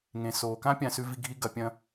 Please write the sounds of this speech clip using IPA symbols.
ŋ ẽ˩ s o˩ k ã˥ pʲ ã˧ s ʉ˧ v i˧ ɡʱ i˥ ɡ ɐ˧ pʲ ɐ̃˥

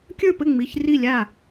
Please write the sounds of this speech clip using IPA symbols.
kʲ ə˞˥˩ p ɘ˥˩ ŋ͡m i˩˧˩ ç r i˥˩ lʲ a˥˩

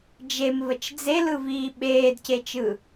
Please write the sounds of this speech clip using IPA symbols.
d͡ʒ e m v ə t͡ʃ d͡z e l ɯ v iː ɓ eː d c e t͡ʃ ɯ

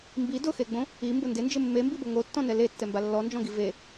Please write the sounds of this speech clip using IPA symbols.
m b i d ʊ x e ɡ͡b õ | i m b ʊ n d ɪ n d͡ʒ ɪ mː e m b i b o ŋ o tː ɔ̃ n ɛ l e tː ɛ m b a lː ɔ n d͡ʒ ɔ̃ ɡ i v e

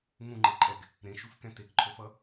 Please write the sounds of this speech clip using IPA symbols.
ŋ ũ ŋ͡ǃ e ǃʼ ɛ ɡ | ɾ ẽ ʃ u f k ɛ̃ t e k ǃʰ o f ʌ

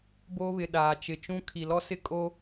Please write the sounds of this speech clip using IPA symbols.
b oː˦ β ɪ˨ ɗ aː˨ t͡ʃ ɪ˨ t͡ʃ ũ˦ kʰ i˨ l ɔ˦ s ɪ˦ kʼ o˦

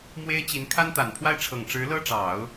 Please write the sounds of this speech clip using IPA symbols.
m w e˥ ɪ̯ t͡ɕ i˧˥ n kʰ a˥ n t̪ a˨˩ n pʰ w a˥˩ ɪ̯ ʈ͡ʂʰ ɤ˨˩ ŋ ʈ͡ʂ ɻ̩˧˥ l ɤ˥ ʈ͡ʂ ɑ˨˩˦ ʊ̯

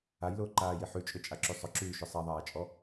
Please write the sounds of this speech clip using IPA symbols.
a j l ʊː ǃ aː j i ħ y t͡ʃʼ ʏ t͡ʃʼ a ǁ y sˤ ʊ ǁ yː ʃ ʏ sˤ ɛ ðˤ aː t͡ʃʼ ɔ

